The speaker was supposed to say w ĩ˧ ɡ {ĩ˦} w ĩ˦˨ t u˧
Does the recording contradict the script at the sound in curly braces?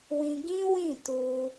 no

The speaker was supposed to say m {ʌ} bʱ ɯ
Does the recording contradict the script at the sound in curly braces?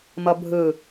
no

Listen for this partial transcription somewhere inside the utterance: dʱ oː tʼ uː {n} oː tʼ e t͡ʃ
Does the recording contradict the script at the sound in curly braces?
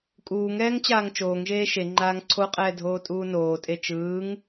no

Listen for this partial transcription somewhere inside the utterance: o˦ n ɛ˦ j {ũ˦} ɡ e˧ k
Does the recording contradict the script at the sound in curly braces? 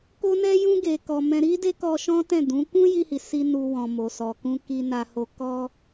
no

